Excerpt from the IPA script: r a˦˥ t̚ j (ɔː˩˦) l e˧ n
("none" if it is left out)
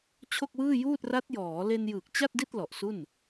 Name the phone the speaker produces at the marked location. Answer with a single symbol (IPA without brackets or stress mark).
ɔː˩˦